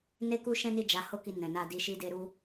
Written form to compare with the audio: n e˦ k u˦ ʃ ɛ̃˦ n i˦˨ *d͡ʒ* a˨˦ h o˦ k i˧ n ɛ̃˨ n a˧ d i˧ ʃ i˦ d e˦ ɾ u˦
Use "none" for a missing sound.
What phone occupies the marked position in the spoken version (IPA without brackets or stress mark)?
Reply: d͡ʒ